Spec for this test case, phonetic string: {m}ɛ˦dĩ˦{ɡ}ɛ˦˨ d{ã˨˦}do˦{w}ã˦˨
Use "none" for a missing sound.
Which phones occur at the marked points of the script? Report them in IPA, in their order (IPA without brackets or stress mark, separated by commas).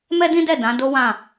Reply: m, d, ã˨˦, w